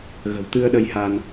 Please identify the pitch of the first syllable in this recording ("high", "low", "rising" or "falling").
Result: low